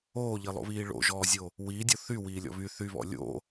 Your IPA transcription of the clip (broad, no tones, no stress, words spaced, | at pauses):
oːʎilˠo̰βiː ɭo̰ʒɔːzʲo | wiːdʲo θywiːlʲɔ̰ βy θyβɔ̰ lʲo̰